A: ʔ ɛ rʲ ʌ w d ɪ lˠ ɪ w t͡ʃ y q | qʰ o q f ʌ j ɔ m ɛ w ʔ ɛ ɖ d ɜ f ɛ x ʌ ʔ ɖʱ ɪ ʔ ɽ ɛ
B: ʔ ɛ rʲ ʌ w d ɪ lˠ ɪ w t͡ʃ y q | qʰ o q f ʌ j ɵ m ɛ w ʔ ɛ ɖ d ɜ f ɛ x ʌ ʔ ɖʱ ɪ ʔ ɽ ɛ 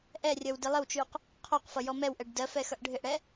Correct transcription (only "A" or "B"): A